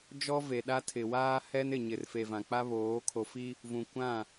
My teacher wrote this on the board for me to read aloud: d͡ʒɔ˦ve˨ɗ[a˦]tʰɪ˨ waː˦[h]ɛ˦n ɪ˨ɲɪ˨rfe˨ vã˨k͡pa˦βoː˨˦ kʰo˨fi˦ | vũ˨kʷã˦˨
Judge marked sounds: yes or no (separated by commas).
yes, yes